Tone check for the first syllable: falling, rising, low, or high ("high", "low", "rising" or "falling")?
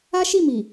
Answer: high